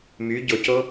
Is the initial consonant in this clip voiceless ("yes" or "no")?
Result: no